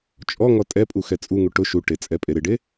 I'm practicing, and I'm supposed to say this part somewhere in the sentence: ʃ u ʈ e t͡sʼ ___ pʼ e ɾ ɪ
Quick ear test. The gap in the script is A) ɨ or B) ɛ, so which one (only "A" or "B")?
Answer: B